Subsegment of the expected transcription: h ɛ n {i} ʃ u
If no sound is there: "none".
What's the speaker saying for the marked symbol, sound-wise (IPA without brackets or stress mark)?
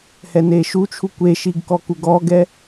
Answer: e